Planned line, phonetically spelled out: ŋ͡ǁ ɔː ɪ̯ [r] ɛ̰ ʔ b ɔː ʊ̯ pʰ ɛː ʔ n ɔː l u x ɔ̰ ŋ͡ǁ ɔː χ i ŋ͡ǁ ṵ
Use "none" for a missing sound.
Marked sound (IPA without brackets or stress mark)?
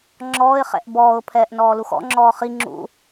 χ